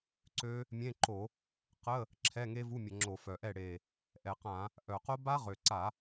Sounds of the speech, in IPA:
ǀø˦˥ | mʲẽ˧˥˧ǃo˧˩˧ | qə˧˥˧ | ǁʰɛ˧˥˧ŋe˦˥vu˧˥˧mʲə˧˩˧ ŋ͡ǁo˧˩˧fœ˨˩ʔɛ˥˩ ɽe˨˩ | ʔɛ˨˩qã˧˩˧ | ʔœ˨˩qo˦˥ ba˦˥ʁø˨˩ǀa˧˩˧

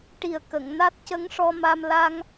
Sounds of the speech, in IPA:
ʈi˨˩ə̯kə˨˩˨ŋ na˦˥t̚cə˧˥ŋʂɔ˧ma˧m la˧ŋ

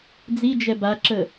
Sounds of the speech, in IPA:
d͡zid͡ʒɛ baǁə

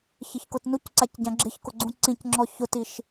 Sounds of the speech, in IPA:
çɪçkʊtnucǀac ɟãɡ͡ǁɪçkʊ ɡ͡ǀũǀĩcŋ͡ǁɔ çʊtiʃ

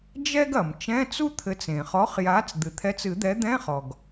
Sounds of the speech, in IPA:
d͡ʒɛ˥ɡɐ˩m t͡ʃɛ̃ː˧˥˧t͡su˥t̪ʰɘ˨˥t͡s ẽ˩χɔ˨˥χjaː˨˥t͡s d̪ɨ˩t̪ʰɛ˨˥t͡sɨ˨˩˦d̪ɛ˨˥ d̪ɛ̃˧˥˧χɔ˩ɡ

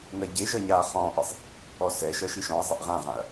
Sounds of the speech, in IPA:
nɜɟeʒʌ ɲaːχɔ̃ːʔisˤ | ɔsɛʃʌ ʃiʃɔ̃ɐ̯zˤeʔ ʁãʁãɐ̯

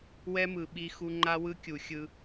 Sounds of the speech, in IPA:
wɛ˦mɯ˨ ɓi˦xu˦ ŋ͡ǃa˦wɯ˦kʲu˨ xʲɯ˦

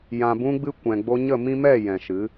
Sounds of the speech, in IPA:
jã˨bũ˧ɡ͡bɨ˧ kʷɛ̃˨ɡ͡bo˧ɲə˦˨mĩ˦ mɛ˦˨ jɛ̃˨ʃɨ˨˦

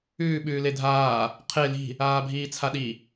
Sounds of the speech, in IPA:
ʉː ɓʉːledʱaː | qʰe li̤ | aːbʱiːt͡sʰaɗi

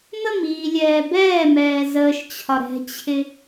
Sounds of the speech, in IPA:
məmiːlʲɛː bɛːmɛː zəːʃt͡ɕʰɒ ɾɛ̤t͡ɕʰɪ

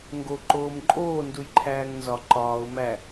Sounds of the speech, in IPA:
ŋɡo ǃoːmǃʼoː ndujǃʰæːŋnzɒ ǃɒːʊ̯ mæ

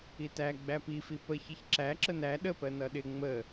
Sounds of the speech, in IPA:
itæ ɡ͡bæpifi pəçiç ǁæ ǁənæ ɗəpɜ nʌɗɪ ŋ͡mə

